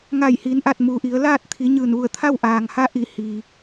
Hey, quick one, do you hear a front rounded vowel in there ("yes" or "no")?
no